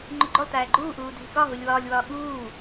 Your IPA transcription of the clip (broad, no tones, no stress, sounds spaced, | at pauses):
ŋ͡ǃ u ɡ͡ǃ o lˠ t æː ɡ͡ǃ uː ʔ uː dʱ i k ɒ ɦ u lʲ w ɒː lʲ w ɒː ɠ uː